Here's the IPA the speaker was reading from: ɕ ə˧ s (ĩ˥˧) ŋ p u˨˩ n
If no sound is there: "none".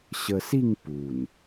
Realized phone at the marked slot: i˥˧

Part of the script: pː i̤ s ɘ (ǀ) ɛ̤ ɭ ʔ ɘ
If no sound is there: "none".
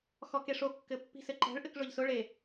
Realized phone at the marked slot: ǃ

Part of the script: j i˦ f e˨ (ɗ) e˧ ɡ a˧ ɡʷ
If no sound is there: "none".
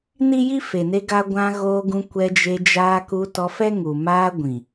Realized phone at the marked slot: n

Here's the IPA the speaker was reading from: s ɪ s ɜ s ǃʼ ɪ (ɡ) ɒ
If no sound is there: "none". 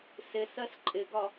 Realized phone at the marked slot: ɡ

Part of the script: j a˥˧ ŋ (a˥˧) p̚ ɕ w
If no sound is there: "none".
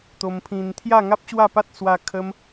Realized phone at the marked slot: a˦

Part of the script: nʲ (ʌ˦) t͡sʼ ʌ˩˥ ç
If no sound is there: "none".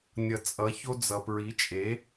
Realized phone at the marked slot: ʌ˩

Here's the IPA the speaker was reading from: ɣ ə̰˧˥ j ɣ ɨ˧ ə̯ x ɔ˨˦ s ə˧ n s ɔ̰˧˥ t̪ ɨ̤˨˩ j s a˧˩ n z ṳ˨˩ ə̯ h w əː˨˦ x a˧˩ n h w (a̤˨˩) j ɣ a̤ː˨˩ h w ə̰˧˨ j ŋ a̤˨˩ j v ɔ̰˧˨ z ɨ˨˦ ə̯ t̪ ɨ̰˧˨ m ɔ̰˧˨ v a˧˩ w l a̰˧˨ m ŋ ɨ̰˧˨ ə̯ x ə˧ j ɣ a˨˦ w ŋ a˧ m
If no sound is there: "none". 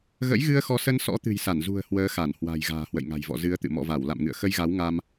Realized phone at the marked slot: a̤˨˩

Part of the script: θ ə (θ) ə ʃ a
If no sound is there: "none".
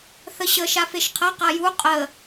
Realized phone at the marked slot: ɕ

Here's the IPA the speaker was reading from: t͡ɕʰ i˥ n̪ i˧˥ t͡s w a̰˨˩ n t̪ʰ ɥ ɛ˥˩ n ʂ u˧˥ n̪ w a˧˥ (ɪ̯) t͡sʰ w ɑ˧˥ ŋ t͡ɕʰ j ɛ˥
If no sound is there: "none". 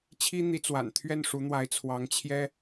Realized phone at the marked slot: ɪ̯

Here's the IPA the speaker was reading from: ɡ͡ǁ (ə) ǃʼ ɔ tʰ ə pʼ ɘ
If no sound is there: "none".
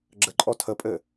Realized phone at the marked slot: ə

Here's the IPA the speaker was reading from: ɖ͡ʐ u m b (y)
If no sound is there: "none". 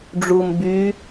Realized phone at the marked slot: y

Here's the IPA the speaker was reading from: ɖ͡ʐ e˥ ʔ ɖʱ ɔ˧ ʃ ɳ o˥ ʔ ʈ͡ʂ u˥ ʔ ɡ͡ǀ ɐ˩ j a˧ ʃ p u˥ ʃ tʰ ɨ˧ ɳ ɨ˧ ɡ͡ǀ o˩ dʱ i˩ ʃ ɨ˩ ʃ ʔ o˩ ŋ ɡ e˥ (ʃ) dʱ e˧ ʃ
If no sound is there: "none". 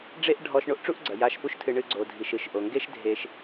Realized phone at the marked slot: ʃ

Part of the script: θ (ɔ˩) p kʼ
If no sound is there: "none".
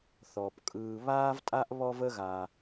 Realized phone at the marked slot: ɔ˩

